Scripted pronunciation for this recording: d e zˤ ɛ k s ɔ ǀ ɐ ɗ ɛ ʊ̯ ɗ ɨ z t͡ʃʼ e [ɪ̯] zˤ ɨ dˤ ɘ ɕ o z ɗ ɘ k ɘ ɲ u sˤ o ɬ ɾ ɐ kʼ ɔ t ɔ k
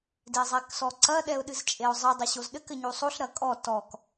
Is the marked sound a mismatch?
yes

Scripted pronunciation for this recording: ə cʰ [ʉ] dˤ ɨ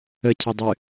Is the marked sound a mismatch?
yes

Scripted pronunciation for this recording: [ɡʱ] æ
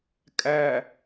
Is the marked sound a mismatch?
yes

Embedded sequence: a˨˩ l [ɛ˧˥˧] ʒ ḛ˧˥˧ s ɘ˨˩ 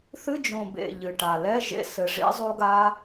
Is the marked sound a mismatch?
no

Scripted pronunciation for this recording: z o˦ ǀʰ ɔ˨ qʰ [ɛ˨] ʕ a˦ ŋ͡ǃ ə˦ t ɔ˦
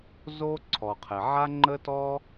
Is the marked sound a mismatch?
no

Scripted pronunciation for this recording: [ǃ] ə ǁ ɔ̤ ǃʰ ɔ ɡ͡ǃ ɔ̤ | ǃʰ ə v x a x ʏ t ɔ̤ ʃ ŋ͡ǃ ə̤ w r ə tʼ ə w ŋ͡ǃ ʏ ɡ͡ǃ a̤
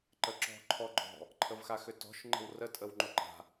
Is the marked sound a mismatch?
no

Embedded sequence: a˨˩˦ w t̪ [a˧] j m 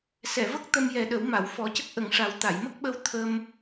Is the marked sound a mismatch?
yes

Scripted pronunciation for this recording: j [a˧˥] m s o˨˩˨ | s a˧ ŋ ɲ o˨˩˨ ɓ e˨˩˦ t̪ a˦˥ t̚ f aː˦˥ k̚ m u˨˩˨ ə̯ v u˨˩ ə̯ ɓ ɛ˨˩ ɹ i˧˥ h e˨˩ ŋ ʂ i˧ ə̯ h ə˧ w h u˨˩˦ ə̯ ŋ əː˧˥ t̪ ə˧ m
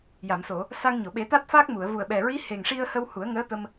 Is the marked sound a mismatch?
yes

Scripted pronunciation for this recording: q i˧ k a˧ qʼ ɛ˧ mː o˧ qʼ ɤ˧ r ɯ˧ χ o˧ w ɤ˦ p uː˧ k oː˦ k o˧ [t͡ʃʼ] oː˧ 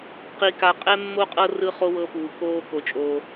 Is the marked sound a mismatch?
no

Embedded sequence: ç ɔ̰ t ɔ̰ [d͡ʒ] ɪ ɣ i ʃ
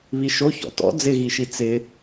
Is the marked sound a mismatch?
yes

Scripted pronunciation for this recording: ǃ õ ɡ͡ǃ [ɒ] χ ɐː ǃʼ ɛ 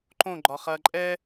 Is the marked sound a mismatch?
no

